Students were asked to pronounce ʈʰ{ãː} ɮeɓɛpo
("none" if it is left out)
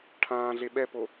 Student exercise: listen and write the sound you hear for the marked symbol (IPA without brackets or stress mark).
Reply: ãː